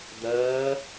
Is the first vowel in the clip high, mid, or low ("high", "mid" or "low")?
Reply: low